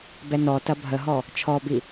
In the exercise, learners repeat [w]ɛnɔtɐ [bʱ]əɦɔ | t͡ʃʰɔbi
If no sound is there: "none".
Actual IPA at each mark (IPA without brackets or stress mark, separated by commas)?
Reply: b, bʱ